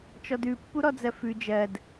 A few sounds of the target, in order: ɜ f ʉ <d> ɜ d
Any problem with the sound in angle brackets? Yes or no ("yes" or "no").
yes